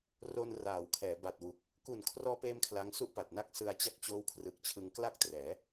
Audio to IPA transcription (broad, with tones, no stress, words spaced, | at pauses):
ro˧nraː˩˦wkʰɛː˩˦ ba˨˩t̚wu˨˩k̚ | ku˨˩n kʰrɔː˧peː˧m kʰla˦˥ŋsu˥˩ʔpa˨˩t̚na˥˩k̚ sɯ˧a̯t͡ɕa˦˥k̚ t͡ɕoː˦˥wkʰrɯ˨˩k̚t͡ɕʰɯ˧ŋ kla˥˩k̚trɛː˩˦